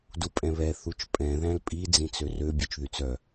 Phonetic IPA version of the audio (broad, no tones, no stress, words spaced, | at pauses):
dupʼɛ̃βɛ θut͡ʃpʼɛ̃ ðæ̃lpʼi d͡zĩt͡sørø bʲøt͡ʃðyt͡sœ